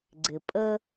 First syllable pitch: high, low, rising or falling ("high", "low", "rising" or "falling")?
low